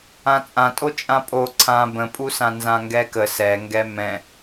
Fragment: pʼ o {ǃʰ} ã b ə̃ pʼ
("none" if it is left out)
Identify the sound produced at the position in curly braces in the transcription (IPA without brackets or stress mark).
ǀʰ